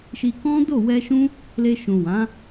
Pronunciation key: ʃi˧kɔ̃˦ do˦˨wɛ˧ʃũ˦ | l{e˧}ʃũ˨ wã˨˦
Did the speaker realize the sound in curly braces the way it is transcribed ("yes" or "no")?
yes